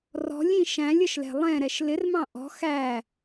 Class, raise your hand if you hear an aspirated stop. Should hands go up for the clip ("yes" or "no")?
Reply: no